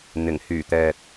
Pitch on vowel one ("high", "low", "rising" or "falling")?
low